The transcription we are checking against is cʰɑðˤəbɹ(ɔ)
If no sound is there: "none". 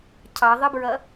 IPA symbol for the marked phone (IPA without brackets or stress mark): ʌ